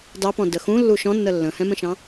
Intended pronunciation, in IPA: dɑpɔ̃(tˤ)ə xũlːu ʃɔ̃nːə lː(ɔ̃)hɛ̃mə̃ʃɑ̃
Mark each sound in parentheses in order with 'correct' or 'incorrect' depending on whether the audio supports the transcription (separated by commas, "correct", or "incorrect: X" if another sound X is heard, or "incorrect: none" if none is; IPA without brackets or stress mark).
incorrect: d, incorrect: ə̃